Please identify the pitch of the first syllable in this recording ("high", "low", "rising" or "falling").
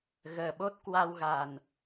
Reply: low